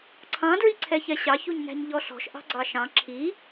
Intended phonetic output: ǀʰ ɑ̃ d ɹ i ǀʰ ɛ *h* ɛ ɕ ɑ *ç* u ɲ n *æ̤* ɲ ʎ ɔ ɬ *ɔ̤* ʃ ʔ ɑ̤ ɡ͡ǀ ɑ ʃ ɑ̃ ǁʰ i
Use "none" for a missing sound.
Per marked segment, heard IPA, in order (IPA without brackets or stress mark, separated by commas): ç, ç, æ̤, ɔ̤